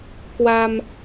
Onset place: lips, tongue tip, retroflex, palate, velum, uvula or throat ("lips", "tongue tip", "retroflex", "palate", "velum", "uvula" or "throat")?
velum